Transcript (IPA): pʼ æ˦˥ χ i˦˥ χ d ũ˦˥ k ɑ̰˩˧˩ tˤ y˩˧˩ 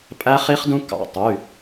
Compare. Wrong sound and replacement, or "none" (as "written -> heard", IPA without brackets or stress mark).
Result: none